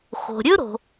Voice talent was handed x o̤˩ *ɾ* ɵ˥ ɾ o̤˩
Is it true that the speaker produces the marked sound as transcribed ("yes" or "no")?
no